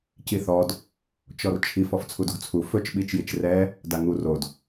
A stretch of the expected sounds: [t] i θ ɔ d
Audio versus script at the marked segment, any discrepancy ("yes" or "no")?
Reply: yes